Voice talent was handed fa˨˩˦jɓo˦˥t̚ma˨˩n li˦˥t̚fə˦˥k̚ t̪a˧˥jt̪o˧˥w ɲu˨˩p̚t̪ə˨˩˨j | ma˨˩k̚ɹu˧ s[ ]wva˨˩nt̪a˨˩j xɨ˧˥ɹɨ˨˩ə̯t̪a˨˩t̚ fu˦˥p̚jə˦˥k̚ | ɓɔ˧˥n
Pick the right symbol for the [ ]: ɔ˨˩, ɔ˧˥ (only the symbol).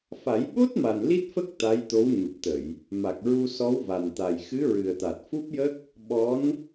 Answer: ɔ˧˥